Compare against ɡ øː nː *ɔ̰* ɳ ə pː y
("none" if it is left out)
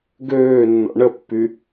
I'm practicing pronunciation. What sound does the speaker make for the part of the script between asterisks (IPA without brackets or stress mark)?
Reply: ɔ̰